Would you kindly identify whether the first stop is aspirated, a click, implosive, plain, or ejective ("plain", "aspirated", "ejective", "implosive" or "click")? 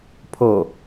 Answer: aspirated